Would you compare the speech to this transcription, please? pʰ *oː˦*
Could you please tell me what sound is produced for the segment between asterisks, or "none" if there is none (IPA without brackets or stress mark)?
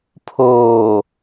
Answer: oː˨